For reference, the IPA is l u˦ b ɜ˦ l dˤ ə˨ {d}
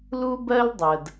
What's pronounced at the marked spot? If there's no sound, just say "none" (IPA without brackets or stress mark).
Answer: d